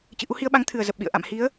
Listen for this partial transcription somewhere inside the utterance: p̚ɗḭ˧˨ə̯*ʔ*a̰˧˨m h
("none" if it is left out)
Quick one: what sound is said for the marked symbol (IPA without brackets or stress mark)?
ʔ